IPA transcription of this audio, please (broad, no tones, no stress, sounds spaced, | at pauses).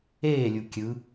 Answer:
eː lʲ u kʲ ɯ